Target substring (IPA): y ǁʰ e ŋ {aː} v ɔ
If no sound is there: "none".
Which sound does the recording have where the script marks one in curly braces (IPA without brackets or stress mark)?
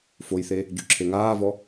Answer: aː